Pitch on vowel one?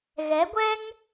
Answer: rising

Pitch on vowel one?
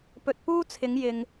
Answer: low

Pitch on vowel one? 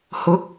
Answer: rising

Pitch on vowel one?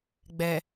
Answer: low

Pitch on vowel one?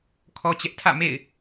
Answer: high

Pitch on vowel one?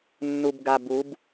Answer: low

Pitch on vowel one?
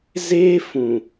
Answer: high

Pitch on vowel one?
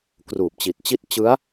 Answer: low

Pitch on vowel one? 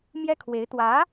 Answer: high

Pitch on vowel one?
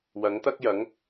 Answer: rising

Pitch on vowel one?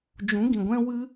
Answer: rising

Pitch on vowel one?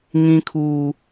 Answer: high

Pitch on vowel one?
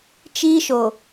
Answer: high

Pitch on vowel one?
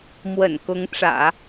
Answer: low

